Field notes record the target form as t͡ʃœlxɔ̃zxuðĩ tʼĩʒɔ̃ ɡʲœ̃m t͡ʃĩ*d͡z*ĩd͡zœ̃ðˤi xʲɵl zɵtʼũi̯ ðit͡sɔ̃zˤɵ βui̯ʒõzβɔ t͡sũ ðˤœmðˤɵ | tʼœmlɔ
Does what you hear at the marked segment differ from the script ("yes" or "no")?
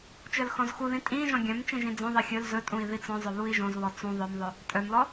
yes